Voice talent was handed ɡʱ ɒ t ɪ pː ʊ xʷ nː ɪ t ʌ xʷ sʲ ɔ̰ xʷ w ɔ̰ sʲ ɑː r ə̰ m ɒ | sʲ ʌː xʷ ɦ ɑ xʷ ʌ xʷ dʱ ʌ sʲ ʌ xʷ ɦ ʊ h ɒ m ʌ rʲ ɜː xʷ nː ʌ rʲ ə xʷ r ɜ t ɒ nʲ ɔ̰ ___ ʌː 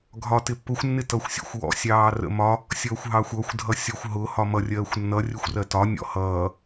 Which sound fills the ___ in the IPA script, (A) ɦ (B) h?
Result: B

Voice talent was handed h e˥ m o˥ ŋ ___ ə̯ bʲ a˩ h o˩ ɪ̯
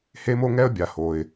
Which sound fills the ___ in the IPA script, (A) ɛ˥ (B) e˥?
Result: A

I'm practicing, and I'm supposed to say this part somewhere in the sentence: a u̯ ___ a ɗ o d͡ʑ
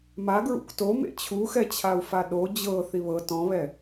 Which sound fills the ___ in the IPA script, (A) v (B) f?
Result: B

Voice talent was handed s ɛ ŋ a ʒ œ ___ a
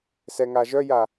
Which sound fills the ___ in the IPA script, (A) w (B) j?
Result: B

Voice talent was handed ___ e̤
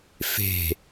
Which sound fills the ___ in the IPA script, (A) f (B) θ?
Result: A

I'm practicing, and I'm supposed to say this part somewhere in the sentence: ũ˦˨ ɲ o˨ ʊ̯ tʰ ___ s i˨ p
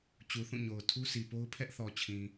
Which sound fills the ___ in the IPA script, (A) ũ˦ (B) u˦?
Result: B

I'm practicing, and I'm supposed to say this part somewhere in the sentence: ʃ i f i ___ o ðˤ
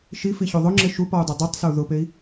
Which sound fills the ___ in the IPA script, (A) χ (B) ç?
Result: B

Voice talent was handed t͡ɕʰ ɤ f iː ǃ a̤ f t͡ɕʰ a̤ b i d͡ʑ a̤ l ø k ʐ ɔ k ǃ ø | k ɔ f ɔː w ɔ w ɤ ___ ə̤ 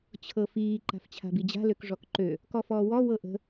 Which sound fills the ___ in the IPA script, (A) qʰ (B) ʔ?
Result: B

